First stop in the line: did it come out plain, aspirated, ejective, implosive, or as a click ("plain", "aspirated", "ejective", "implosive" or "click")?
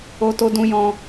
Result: plain